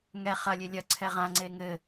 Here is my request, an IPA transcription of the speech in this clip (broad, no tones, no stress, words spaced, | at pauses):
ŋɛ χɐlʲe lʲɐǀʰɛ ʁãŋ͡ǀe ŋɘ